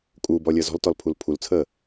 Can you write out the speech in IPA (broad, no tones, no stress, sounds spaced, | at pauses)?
kʼ uː b ɔ lʲ əː z ɔ̤ l t ɔ l pʰ u l pʰ u l t͡sʰ əː